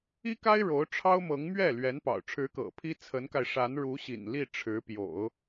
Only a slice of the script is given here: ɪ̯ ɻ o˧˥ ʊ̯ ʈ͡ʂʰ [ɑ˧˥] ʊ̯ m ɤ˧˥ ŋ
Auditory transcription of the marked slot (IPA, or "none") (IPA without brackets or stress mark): ɑ˥